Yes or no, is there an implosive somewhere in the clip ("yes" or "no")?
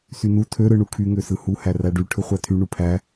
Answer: no